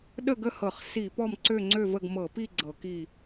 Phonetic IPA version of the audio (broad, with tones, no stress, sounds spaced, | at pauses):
ɗ ə˥˨ ɡ ə˥˨ h ɤ˧˩˧ χ s i˧˩˧ p ɔ˥˨ m ǀ ø˥˨ ŋ͡ǀ ø˥˨ v ə˥˨ ɡ m ɤ˧˩˧ p i˥˨ ɡ͡ǀ ɤ˧˩˧ k i˥˨